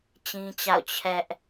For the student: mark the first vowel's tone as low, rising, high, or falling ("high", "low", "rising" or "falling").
high